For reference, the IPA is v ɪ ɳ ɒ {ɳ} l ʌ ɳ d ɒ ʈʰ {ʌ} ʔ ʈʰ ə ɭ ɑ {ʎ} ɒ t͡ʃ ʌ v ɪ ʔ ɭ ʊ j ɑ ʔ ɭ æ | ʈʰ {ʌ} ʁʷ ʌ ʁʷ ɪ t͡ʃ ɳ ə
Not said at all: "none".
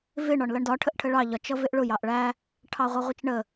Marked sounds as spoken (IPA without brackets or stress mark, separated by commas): ɳ, ə, ʎ, ɑ